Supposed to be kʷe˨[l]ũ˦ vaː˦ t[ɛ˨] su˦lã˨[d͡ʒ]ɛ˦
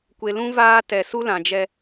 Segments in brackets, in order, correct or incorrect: correct, correct, correct

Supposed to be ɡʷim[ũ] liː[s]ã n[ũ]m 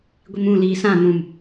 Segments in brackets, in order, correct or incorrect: correct, correct, correct

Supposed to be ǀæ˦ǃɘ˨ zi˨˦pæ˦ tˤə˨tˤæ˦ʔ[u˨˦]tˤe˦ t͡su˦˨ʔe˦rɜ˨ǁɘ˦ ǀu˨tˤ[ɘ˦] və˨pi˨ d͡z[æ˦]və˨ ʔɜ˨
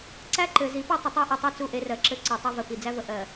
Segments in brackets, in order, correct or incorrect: incorrect: u˨, correct, correct

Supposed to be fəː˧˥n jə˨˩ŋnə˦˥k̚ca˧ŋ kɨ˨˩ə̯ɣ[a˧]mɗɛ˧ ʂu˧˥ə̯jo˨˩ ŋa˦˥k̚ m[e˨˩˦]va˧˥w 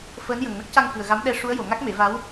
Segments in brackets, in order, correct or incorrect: incorrect: a˧˥, correct

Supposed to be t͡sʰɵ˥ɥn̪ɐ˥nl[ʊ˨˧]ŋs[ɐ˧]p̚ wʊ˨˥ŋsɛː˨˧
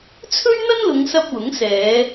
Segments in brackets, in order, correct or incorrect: correct, correct

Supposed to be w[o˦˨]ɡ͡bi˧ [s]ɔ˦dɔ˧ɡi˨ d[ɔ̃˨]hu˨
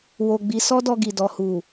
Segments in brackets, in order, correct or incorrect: incorrect: o˧, correct, incorrect: ɔ˨

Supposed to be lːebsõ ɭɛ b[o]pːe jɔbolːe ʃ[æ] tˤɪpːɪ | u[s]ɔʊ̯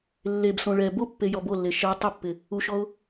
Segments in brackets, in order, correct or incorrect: correct, incorrect: ɛ, incorrect: ʃ

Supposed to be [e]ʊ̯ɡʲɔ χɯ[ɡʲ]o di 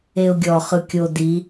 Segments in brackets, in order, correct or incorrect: correct, incorrect: kʲ

